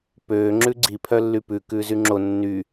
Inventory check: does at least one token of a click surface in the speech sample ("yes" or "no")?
yes